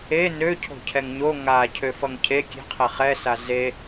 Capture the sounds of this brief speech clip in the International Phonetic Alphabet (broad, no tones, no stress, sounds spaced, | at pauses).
e n ø cʰ o̤ cʰ ɛ ŋ ɲ o ŋ a cʰ ø f ʌ ŋ cʰ e kʲ e̤ qʰ e χ ɛ s a z e